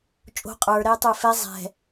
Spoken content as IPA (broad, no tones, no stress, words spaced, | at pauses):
t͡ʃʼo̤ qʼə˞ɾɛː tˤə˞fɛ zˤɛ̤